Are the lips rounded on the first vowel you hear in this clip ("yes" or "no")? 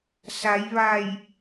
no